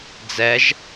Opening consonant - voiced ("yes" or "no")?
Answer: yes